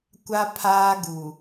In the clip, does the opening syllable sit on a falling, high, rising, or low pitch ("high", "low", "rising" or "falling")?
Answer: high